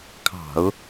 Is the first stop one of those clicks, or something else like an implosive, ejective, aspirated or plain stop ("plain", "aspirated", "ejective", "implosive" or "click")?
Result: aspirated